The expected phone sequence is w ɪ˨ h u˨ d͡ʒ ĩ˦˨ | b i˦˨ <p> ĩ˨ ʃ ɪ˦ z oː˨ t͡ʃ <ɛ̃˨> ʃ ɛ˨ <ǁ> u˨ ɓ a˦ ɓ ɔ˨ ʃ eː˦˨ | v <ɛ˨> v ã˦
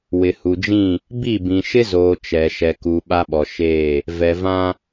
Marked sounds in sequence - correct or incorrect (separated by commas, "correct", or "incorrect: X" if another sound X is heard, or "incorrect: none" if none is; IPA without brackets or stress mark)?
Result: incorrect: b, incorrect: ɛ˨, incorrect: k, correct